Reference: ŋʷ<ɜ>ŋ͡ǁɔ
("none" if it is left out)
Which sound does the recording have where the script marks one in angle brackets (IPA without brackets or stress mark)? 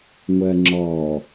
ɜ